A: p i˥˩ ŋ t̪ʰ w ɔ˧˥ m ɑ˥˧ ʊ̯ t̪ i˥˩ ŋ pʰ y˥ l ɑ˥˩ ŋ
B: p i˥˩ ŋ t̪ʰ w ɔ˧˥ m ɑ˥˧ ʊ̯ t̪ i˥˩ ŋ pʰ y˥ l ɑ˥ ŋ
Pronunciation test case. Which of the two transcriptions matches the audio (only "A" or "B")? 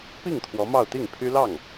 A